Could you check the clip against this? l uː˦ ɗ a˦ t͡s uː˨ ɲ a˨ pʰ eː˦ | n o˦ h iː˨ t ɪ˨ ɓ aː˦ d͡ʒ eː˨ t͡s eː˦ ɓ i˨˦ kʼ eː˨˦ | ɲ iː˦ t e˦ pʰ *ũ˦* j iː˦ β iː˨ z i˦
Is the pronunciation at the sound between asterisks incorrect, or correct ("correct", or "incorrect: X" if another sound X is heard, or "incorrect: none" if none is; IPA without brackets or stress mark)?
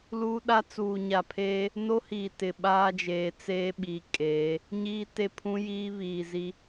correct